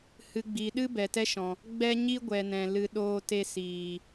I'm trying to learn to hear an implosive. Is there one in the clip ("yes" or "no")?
yes